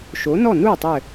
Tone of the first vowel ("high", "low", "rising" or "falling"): rising